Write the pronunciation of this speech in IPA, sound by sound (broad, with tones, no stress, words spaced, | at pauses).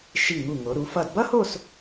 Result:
ʃi˧˩ŋu˧˩ŋo˩˧ ɾu˩˧fʌ˧˩dbʌ˥ho˥˧s